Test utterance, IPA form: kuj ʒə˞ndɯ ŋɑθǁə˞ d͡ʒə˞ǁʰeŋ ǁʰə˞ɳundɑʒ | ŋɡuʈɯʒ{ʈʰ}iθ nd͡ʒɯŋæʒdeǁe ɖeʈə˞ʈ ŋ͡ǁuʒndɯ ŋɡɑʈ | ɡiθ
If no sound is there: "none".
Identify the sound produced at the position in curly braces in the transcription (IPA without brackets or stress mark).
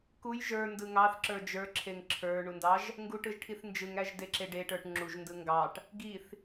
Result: ʈʰ